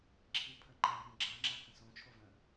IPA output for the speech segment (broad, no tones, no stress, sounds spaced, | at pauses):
ǁʰ i pʰ ə ŋ͡ǃ ã r ə̃ ɡ͡ǁ a ŋ͡ǁ a k ə̃ s õ t͡ʃʰ o v ə̃